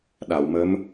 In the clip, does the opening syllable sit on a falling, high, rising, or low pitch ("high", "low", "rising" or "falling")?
low